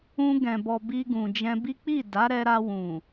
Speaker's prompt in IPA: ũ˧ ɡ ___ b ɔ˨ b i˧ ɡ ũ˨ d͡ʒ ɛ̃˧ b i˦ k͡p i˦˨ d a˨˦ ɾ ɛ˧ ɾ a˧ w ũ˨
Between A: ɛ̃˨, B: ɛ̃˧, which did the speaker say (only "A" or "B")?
A